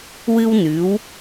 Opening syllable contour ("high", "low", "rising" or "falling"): high